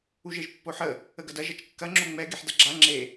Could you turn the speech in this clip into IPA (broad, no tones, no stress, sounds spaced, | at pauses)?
u ʒ e ʒ pː o ħ ə | ə ɡ ɐ d ɐ ʒ ɐ t͡ʃ kː ɐ ŋ͡ǁ o ŋ͡m ɛ ɡ e ħ d ɐ ɡ͡ǁ a ŋ͡ǁ e